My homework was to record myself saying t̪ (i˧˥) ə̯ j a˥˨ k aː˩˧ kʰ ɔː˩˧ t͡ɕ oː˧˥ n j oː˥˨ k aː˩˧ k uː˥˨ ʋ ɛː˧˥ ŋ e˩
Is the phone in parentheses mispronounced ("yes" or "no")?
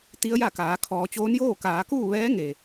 no